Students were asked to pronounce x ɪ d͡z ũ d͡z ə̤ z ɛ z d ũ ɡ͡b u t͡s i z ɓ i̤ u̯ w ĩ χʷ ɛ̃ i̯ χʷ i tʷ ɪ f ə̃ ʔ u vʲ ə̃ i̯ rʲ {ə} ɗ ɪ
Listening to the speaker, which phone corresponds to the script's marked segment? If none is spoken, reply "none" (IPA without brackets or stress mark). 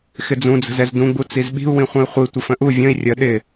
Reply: ə